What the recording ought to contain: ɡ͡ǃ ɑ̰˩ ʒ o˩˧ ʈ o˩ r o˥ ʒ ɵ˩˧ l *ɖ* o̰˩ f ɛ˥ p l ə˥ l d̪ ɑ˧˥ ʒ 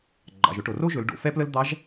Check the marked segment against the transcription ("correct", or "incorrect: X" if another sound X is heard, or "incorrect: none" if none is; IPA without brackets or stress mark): correct